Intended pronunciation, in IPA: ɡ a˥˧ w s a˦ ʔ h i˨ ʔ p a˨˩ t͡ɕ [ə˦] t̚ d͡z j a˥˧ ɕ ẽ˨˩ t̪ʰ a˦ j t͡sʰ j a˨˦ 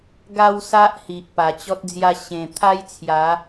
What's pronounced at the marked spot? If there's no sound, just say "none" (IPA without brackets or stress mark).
ɔ˦